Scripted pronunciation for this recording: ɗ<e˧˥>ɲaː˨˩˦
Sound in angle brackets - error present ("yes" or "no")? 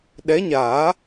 yes